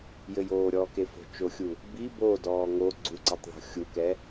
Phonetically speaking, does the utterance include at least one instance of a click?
yes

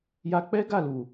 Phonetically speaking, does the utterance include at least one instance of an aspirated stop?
no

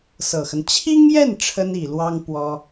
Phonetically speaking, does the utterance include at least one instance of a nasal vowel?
no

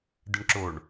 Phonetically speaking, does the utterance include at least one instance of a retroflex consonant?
yes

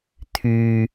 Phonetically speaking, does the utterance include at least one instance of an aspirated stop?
yes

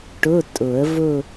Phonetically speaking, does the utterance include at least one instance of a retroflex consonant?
yes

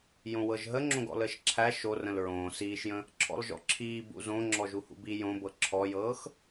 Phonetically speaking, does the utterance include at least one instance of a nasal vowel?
yes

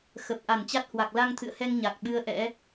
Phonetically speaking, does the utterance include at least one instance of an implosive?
yes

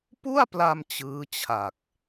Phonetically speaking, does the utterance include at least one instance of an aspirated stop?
yes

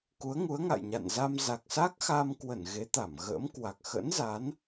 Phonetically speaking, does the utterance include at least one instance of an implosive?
no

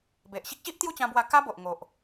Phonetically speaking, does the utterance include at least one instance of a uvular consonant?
no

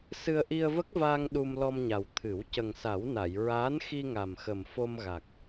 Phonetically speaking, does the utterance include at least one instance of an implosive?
yes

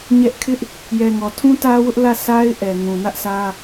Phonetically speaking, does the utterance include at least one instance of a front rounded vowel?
no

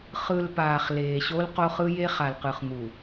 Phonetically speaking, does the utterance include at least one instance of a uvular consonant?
yes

